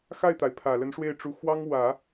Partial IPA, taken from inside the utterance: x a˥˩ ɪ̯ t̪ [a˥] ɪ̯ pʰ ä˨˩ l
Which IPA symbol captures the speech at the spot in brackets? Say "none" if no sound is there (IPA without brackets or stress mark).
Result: a˩